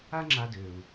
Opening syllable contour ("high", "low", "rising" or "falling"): high